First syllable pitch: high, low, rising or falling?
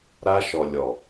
high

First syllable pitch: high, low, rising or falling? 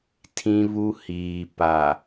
high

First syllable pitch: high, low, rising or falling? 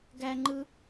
high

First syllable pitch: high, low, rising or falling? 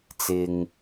low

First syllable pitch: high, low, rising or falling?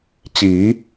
rising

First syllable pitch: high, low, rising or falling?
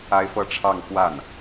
high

